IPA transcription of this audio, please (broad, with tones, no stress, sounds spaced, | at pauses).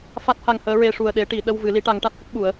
f a˦˥ t̚ h a˧ ŋ h əː˧˥ ɹ e˧ ʂ u˨˩ ə̯ ɗ e˨˩˦ ʈ i˨˩˨ ɗ ə˧ w v ɨ˨˩˦ l i˧˥ ʈ a˧˥ ŋ ʈ a˦˥ t̚ h ə˦˥ k̚ ɓ u˨˩˦ ə̯